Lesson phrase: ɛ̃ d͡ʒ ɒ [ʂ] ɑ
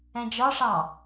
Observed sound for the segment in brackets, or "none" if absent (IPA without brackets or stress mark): ʂ